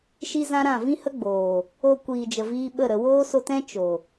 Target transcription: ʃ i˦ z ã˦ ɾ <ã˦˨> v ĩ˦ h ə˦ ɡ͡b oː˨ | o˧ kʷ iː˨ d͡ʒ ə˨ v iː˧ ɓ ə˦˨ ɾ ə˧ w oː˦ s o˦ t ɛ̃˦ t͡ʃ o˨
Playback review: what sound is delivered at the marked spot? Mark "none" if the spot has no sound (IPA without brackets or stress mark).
ã˦˨